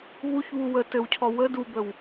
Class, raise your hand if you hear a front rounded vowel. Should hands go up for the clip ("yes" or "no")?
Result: no